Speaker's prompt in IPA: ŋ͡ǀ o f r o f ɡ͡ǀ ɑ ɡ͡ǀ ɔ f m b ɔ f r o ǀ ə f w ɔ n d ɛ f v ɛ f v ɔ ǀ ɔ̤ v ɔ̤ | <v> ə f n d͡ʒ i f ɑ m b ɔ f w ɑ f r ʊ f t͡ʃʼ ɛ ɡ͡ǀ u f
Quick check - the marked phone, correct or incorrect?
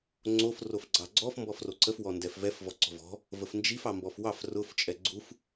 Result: correct